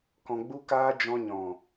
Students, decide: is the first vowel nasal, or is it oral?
nasal